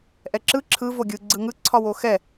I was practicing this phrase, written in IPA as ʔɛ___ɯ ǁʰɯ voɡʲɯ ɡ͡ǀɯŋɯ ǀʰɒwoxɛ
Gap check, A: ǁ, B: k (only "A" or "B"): A